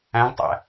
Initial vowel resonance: nasal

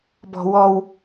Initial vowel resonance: oral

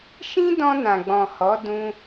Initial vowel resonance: nasal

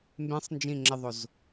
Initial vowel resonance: nasal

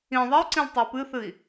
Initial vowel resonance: nasal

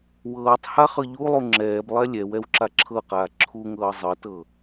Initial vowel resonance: oral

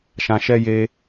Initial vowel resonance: nasal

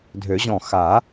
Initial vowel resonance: oral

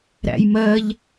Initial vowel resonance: oral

